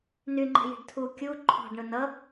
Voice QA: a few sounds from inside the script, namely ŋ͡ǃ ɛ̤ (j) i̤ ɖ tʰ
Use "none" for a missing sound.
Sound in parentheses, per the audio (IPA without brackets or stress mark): j